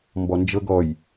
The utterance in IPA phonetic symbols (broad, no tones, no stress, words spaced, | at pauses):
mbɔnd͡ʒɤɡ ɔj